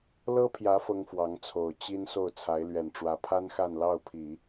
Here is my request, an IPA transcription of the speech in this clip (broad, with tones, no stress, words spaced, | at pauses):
lɤ˥pʰjä˧˥ fɤ˥ŋfwɑ˧˥ŋt͡sʰo˨˩ʊ̯ t͡ɕi˥n so˥˩ʊ̯t͡sʰa˧˥ɪ̯lɥɛ˨˩nʈ͡ʂwä˧˥ pʰa˥nxa˥˧nlɑ˥˩ʊ̯ pʰi˨˩˦